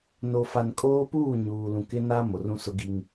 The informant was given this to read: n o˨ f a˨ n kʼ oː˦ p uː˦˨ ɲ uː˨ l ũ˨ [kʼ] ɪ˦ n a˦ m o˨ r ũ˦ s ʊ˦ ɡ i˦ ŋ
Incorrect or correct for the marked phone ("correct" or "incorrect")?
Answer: incorrect